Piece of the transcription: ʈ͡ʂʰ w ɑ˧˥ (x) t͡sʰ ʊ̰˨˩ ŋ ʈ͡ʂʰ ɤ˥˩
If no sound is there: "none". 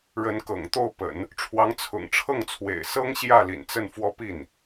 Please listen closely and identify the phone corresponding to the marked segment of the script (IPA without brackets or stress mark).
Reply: ŋ